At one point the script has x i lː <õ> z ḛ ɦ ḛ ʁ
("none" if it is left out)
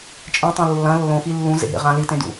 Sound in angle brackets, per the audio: ũ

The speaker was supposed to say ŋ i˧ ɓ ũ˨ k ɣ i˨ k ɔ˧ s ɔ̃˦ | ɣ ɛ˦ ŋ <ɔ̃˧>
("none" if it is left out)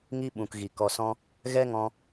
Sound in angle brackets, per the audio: ɔ̃˧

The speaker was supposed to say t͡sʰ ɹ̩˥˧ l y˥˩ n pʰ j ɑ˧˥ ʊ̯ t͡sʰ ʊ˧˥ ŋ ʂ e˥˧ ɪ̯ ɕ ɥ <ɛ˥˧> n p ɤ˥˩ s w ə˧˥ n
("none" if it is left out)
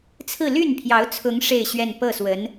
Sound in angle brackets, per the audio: ɛ˥˧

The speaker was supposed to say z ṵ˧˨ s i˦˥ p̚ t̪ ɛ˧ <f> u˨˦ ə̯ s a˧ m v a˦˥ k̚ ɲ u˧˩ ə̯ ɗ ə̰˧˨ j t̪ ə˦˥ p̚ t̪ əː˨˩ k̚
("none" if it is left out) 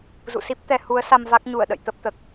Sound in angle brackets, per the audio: h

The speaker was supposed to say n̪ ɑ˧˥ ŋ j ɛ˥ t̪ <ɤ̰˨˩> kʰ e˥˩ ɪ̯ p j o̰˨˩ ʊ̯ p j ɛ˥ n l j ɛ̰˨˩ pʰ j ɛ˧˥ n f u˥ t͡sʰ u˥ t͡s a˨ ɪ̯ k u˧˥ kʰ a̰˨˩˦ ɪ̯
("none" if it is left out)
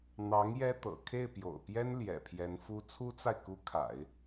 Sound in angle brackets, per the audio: ɤ̰˨˩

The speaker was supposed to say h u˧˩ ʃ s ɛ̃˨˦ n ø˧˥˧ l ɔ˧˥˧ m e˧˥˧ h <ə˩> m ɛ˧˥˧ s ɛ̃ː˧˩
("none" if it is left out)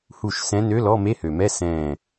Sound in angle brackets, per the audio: ø˩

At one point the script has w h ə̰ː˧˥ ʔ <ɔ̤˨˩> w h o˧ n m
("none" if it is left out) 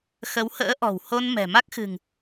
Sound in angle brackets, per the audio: ɔ̤˨˩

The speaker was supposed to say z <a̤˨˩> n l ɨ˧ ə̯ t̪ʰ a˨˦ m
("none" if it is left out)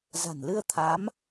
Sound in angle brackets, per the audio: a̤˨˩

